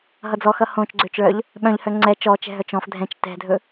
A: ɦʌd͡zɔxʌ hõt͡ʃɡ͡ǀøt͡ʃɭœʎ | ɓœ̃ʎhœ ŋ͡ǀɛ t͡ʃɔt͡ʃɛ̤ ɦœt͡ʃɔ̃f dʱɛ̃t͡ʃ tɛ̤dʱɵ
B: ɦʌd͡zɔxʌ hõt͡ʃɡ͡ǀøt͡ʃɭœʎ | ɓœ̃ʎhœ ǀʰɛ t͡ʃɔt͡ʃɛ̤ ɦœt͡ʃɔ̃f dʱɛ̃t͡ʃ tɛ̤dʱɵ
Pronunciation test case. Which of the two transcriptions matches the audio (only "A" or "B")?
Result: A